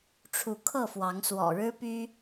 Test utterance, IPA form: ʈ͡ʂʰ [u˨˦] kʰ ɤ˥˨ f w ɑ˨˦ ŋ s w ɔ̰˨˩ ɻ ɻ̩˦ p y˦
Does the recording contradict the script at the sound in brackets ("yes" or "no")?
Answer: no